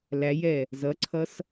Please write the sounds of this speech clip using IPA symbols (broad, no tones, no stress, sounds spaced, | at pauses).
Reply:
l æ j ɛ | z ʌ ǀʰ ʌ s